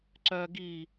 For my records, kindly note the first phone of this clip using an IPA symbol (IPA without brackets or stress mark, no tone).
ǀ